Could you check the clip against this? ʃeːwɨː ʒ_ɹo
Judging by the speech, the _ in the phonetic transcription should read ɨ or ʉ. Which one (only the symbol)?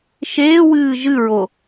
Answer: ɨ